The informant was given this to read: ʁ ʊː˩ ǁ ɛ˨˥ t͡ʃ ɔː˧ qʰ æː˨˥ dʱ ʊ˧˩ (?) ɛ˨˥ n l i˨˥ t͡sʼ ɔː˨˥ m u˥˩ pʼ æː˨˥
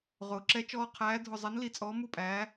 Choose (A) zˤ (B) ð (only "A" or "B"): A